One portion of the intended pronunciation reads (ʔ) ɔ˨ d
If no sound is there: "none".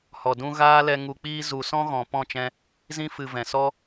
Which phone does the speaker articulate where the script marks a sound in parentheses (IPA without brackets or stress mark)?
h